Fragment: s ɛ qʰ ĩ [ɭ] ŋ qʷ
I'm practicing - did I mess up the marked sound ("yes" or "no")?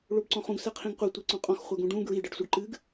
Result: yes